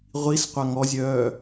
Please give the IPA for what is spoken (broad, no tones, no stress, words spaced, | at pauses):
ʁʷis qʷaŋɔzʲœː